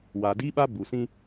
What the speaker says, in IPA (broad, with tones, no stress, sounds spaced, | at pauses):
w a˨ d i˦ ɓ a˦ b u˨ s ĩ˦